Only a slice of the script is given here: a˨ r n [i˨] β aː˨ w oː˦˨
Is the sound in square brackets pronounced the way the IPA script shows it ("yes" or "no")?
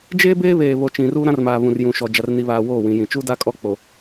yes